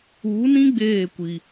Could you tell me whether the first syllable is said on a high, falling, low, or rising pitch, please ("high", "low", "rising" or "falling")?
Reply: rising